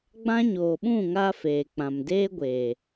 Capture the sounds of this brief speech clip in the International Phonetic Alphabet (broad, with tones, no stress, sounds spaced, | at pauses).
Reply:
ɡ͡b ã˦ ɲ oː˨ ɓ ũ˦˨ ŋ aː˧ f eː˨ k͡p ã˨ m d eː˦ ɡʷ eː˨